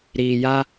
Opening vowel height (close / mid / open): close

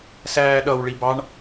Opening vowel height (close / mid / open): open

